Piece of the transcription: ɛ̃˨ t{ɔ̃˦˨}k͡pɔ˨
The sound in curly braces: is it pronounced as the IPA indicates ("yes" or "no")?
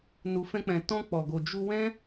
no